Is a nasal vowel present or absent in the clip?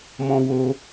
present